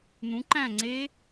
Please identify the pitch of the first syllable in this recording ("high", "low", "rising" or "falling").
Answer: rising